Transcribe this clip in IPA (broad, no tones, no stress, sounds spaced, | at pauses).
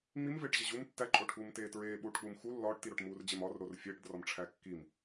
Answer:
ŋ͡m i m v eː ʈ ʑ e ʑ u m tː æ ǃʼ o ʈʰ uː m t eː t ɹ eː ɓ uː ʈ k͡p uː m x u lː ɒː ʈ t i ɾ o ʈ m uː r d͡ʑ e m ɒ r ɾ o r fʲ eː ʈ d r ɒ m ʈ͡ʂʰ æ kː i m